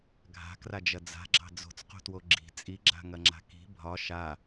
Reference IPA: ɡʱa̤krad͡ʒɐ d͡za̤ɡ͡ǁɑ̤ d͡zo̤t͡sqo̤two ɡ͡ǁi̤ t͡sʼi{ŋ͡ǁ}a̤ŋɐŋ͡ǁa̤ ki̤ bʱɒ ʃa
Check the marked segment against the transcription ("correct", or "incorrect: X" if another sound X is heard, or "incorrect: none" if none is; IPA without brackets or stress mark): incorrect: ɡ͡ǁ